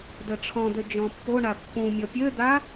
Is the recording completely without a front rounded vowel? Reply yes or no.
no